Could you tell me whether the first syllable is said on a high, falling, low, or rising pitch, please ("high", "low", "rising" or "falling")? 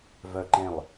low